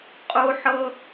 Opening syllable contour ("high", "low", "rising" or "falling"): high